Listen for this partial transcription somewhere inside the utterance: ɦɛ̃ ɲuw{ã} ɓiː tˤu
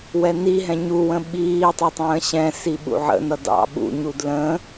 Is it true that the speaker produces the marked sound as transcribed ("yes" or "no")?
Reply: no